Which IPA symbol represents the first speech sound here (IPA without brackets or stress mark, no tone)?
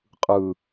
qʼ